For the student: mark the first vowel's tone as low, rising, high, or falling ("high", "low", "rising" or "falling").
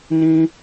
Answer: high